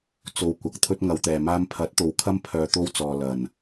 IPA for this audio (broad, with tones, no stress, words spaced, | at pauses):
t͡so˨wkʷɐ˨k̚ t̪ʰɵ˥t̚ŋɐ˨˧wt̪ɛː˨maː˥m pʰɐ˨˥t̚t̪o˨wkʰɐ˥m pʰœː˧t̪o˥wt͡sɔː˨ lɐ˨˩n